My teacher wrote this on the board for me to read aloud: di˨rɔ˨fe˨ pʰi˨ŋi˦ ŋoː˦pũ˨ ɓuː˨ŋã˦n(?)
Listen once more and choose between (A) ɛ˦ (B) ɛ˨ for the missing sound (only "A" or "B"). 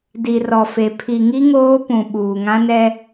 A